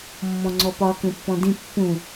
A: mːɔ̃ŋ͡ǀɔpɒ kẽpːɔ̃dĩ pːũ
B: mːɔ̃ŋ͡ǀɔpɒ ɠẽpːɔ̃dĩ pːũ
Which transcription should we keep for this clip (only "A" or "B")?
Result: A